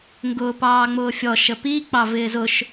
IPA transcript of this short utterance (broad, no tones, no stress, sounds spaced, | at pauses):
ŋ ɡ ʊː p ɑː ŋ͡m ʊː fʲ ɔ ʃ ə p i k͡p ɑ v ɪː z ʊ ʃ